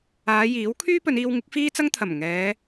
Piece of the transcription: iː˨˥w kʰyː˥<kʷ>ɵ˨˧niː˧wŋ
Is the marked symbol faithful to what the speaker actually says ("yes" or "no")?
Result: no